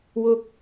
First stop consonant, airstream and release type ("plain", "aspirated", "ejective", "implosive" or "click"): plain